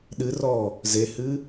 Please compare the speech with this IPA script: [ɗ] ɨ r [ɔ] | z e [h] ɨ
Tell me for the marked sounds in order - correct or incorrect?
correct, correct, correct

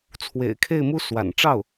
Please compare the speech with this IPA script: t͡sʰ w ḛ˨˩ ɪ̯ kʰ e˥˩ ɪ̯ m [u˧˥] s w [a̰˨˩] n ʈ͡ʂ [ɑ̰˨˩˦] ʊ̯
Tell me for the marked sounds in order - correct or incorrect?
incorrect: u˥, correct, incorrect: ɑ˥˩

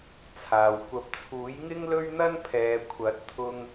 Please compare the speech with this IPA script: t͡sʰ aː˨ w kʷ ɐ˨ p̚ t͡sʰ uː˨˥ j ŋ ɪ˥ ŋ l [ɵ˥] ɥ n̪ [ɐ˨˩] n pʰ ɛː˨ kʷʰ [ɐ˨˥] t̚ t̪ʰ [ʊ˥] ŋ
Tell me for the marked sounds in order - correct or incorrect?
correct, incorrect: ɐ˥, correct, incorrect: ʊ˧

